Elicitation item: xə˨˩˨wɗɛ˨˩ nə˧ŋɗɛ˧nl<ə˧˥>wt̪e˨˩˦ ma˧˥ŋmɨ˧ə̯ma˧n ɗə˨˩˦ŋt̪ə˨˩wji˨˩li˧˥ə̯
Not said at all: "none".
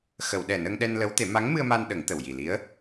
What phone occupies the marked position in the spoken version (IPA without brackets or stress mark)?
ə˧˥